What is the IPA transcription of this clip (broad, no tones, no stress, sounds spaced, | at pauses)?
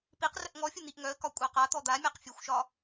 p i q r ə ʔ ŋ ɔ fʲ ə n̪ i ʔ ŋ œ ə̯ k ɒ kʷʼ a q a t̪ ɔ d̪ a mʲ a q fʲ ə xʷ ʃ ɒ